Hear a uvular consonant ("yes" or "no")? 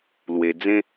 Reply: no